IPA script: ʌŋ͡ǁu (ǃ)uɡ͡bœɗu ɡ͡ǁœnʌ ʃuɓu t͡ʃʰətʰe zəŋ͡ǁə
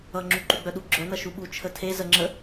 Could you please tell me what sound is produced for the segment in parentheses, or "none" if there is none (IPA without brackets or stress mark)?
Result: ǃ